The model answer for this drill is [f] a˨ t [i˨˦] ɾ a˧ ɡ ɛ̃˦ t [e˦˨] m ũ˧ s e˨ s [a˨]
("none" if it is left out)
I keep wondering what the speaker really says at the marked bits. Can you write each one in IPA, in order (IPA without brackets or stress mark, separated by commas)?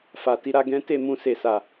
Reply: f, i˨˦, e˦˨, a˨